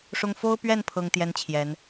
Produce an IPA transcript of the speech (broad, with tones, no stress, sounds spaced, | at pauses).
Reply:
ʂ ʊ˥ ŋ f o˥ ʊ̯ p ɥ ɛ˥˩ n pʰ ɤ˥ ŋ t̪ j ɛ˥ n t͡ɕʰ j ɛ˧˥ n